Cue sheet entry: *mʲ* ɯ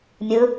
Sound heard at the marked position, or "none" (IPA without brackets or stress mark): mʲ